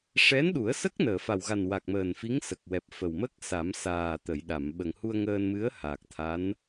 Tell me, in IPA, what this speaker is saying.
ʂɛ˧˥nɗu˨˩˦ə̯sə˦˥k̚ nəː˨˩˨fa˨˩wɣa˨˩n wa˨˩k̚məː˨˩nfi˧˥ŋ sə˨˩k̚wɛ˨˩p̚fə˨˩w mə˦˥k̚ sa˨˩˦m saː˨˩ t̪ə˨˩˨jɗa˨˩˨m ɓə˨˩ŋhu˧ə̯ŋəː˧nmɨ˧˥ə̯ ha˨˩k̚t̪ʰa˧˥n

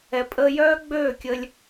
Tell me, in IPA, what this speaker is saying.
ɛ˨pʼəː˧jœː˦ɡ͡bøː˦˨ kʲə˧lʲ

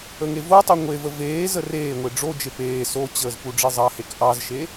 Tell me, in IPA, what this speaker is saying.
əŋevotˤu ŋʷevə veːzə reːŋʷe ɖ͡ʐod͡ʒe peː sot͡ɕəːz puɖ͡ʐezˤɑhek ʔɑzʃe

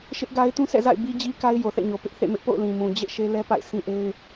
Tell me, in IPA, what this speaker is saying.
ʃɪ˦ʔɡa˦ɪ̯ tũ˦sɛ̰˦˨za̰˦˨ɪ̯ bi˦d͡ʑi˦ka˦ɪ̯ jo˨θɛ̰˦˨ɲo˨ pɪ˦ʔθḛ˦˨mɪ˦ʔpo̰˦˨ʊ̯ lĩ˨mũ˨ d͡ʑḛ˦˨ ʃe˦lɛ˦pa̰˦˨ɪ̯ sʰĩ˦ʔe˦ɪ̯

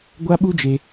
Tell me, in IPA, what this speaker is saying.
ɡʷa˦ɓu˦d͡ʒe˧

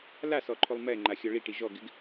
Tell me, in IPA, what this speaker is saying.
lasɔǃʰolˠ mɛŋ͡ǃaxʲɔ ɭiʈi ʒɔɡɪɡ

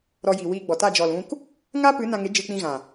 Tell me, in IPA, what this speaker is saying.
ɾɔ˧ji˨wiː˧ ɡ͡bɔ˨ta˦˨ d͡ʒɔ˨lũ˧k | ŋaː˦pɨ˨˦ nã˧ŋe˨˦ d͡ʒɨ˧k͡pĩ˧ɣã˨

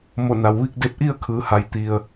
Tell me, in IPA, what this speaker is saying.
mo˧˩na˩w ʋi˥˨k̚ de˧p̚ʔi˥˨ə̯kʰɯː˩˧ ha˩˧jt̪i˩ə̯

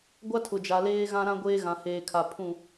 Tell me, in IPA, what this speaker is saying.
ɡʷa˦tʰʊ˨d͡ʒa˨ leː˦ɣã˦ɾã˦ ɡʷeː˦ɣã˨heː˨kʰa˨ pʰũ˦˨

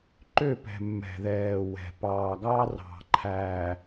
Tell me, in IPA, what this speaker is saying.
ǃø˦˨pɛ̤˨ mːɛ̤˨ðɛː˨wɛ̤˨ pɑː˨ɡɑ˦ rɑ̤˨ǃʰæː˨

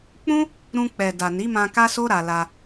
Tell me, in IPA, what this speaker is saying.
k͡pũ˦ | ɾũ˧ k͡pɛ˨da˨ni˨˦mã˧ ka˦so˦ ɾa˧la˧

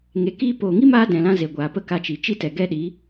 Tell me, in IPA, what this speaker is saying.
ŋe˨kiː˧poː˨ ŋi˦maː˧ dɛ̃˨lã˦ze˨ɡʷaː˨ pə˦ka˧t͡ʃi˨ t͡ʃi˦tɛ˨ɡɛ˦ɗiː˨˦

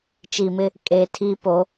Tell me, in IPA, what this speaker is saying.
t͡ʃi˨mɪ˦ | kʼeː˨tʰiː˦ po˨˦

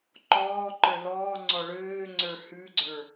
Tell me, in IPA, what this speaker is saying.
ǃɔːǃə˞ lɔːŋ͡ǀɔ ɭøːŋ͡ǀə˞ hʉɡ͡ǀə˞

